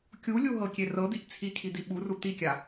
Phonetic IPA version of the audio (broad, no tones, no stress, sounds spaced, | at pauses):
kʲ u lʲ u ɦ ɤ kʲ e r ɤ d̪ i ʔ t͡sʰ i kʰ i d̪ i ɓ u r u t̪ i kʲ a